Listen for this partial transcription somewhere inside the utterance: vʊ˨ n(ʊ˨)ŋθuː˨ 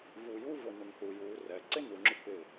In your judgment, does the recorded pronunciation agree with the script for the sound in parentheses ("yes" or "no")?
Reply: no